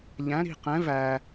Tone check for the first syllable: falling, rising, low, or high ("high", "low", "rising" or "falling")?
rising